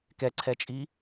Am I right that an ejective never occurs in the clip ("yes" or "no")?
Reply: no